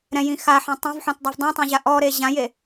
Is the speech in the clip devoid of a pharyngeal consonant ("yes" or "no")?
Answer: no